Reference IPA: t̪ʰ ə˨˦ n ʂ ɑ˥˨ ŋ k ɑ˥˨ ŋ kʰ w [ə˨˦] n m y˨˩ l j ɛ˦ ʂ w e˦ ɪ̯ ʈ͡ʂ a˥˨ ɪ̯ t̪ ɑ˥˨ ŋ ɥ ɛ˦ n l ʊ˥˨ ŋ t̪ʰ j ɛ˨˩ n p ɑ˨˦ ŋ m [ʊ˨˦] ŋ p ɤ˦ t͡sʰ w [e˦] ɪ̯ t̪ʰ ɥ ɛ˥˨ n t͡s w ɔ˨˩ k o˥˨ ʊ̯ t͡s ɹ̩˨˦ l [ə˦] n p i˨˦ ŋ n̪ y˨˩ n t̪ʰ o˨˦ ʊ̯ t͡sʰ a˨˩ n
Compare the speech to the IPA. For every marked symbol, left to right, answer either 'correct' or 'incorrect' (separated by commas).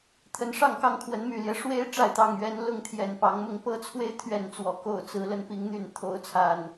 correct, incorrect, correct, incorrect